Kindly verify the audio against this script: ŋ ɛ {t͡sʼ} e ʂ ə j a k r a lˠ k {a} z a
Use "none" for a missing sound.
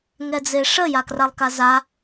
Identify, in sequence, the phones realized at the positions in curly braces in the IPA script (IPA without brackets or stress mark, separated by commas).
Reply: d͡z, a